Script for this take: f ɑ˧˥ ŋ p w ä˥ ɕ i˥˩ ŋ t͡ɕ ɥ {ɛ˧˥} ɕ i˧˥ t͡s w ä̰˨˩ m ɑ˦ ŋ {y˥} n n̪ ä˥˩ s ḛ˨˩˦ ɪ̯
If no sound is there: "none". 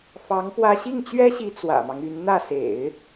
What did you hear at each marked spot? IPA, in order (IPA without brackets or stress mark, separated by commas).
ɛ˥, y˧˥